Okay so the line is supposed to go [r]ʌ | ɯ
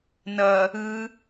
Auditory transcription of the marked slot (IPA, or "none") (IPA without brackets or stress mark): n